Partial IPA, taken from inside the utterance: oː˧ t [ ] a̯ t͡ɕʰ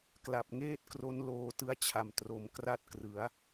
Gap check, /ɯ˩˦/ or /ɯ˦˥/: ɯ˦˥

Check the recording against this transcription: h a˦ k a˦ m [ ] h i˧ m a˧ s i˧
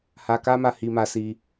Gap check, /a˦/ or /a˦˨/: a˦˨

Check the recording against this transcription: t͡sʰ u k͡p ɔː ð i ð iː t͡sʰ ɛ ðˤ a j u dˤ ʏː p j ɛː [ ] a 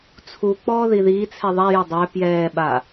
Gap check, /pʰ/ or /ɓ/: ɓ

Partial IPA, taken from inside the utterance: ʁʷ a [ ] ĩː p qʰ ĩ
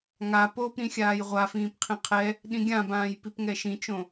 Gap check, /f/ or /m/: f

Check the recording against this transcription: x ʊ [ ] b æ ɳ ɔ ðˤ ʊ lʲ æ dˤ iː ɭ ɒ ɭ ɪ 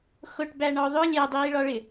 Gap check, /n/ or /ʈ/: ʈ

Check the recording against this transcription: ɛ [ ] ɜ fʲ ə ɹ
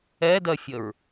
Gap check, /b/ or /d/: d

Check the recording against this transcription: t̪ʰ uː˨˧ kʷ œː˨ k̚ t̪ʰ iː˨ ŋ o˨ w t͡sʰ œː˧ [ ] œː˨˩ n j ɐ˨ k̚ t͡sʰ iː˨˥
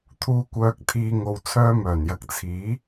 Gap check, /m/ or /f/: m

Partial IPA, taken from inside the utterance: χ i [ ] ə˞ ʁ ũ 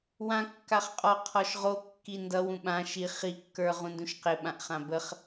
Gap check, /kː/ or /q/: kː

